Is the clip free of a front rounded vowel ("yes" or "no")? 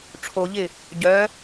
no